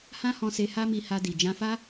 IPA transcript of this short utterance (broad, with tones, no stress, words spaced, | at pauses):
hã˦hɔ̃˧se˧ ha˦mi˧ha˧di˨ d͡ʒã˧fa˦